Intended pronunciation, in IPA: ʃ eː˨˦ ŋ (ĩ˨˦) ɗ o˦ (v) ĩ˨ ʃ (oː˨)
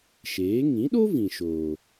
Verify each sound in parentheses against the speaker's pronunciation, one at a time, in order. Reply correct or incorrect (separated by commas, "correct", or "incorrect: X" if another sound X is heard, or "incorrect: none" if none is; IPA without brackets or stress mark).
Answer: correct, correct, correct